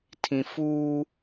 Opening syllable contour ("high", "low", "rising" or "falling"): low